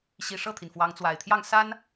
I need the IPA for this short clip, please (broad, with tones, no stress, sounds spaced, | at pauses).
ɕ i˧˥ ʂ ɤ˥˩ t̪ʰ i˩ n f w ɑ˧˥ ŋ t͡s w a˨˩ ɪ̯ t̪ʰ j ɑ˥˩ ŋ s a˥ n